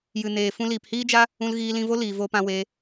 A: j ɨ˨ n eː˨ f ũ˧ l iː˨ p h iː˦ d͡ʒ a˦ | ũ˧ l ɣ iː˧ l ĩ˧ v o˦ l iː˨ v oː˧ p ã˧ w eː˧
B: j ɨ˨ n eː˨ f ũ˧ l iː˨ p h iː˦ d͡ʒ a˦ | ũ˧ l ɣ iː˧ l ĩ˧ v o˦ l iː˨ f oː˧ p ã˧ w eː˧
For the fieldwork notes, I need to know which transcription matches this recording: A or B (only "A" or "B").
A